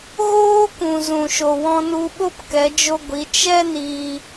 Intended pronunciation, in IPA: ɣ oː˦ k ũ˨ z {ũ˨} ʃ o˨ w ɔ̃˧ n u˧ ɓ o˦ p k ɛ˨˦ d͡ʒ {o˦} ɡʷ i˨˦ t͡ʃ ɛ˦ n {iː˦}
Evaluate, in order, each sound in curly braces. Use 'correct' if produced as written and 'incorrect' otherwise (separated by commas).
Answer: correct, correct, incorrect